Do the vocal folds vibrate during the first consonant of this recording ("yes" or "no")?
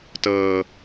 no